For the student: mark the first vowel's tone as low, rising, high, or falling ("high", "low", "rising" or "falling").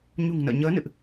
low